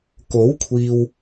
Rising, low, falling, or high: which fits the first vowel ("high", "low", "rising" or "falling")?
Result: rising